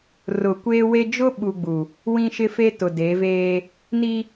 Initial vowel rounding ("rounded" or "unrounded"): rounded